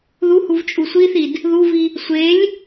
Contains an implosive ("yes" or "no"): no